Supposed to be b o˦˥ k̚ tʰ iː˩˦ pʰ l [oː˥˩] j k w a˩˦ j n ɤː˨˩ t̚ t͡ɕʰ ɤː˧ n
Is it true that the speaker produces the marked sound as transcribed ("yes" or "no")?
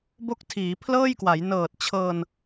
no